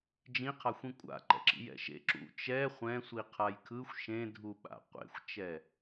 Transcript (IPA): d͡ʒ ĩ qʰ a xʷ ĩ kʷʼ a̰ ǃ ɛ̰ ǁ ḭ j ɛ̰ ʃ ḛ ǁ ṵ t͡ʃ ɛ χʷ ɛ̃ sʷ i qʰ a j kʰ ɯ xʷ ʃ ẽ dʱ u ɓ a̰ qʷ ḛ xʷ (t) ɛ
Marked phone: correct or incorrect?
incorrect